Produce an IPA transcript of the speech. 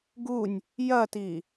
ɡ u nʲ | j ɐ t i

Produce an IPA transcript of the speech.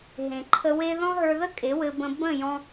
ɦ ẽ˨ ǃʰ ə˧ w e˦ ð ɔ̃˦ ɦ ə˞˧ ð ə˦ kʼ e˨˦ w ɘ˧ b ə̃˧ b ə̃˦˨ j ɔ̃˧

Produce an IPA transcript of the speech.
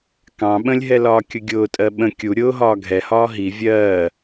k ɑ̃ ɓ ə̃ lʲ ɦ ɛ l ɒː kʲ ʊ ɡʲ ʊː tʼ ɜ ɓ ə̃ kʲ u ɾʲ ʊː ɦ ɒː ɡʱ ɛ h ɒː ɦ i vʲ ɜː

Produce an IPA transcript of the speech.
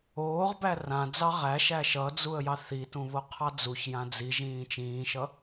oː ʁ b æ r ã d͡z ɑ ʁ æ ʃ æ ʃ ʌ d͡z u ə̯ j ɑ θ i t ũ β o qʰ ɑ d͡z u ç j ã d͡z i ʒ ĩː t͡ʃ ĩː ʃ ʌ

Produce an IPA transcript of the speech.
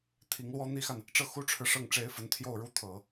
t̪ʰ i˧˥ ŋ l w ɔ˥ n̪ i˥ x a˨ n | ʈ͡ʂ ɤ˥˩ x u˥ ʈ͡ʂʰ ɻ̩˨ ʂ ɤ˥˩ ŋ ʈ͡ʂ e˥ ɪ̯ f ə˧˥ n t̪ʰ j o˥˧ ʊ̯ ɻ u˥˩ t̪ʰ ɤ˨˩˦

